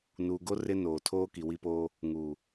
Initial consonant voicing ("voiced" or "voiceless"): voiced